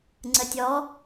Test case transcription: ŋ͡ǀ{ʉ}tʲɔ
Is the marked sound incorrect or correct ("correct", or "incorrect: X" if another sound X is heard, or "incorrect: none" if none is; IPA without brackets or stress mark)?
incorrect: ə